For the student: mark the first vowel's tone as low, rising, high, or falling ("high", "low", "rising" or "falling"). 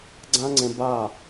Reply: high